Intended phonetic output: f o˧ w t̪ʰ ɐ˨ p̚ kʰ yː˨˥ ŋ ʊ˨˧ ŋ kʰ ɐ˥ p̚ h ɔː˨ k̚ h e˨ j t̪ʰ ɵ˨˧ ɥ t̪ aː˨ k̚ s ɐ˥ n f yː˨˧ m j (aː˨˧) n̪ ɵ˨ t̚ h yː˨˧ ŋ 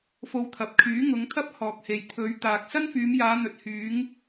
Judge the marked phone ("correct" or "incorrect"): correct